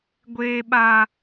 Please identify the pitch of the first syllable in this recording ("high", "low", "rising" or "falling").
high